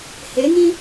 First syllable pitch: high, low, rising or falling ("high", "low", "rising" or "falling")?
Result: rising